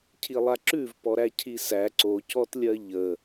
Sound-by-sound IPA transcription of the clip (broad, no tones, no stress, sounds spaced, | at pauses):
cʰ i lˠ a ǁ ʉ v p ɔ ɾ æ cʰ i s æ ǀ o c ɔ t lʲ ɜ ʎ ə